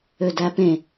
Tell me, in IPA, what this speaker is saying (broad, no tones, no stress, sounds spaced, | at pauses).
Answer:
ø d æ p ẽ